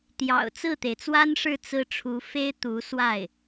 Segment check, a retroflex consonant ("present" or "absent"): present